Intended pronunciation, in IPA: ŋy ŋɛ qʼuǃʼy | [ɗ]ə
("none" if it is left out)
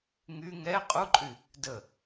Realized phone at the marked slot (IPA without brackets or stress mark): d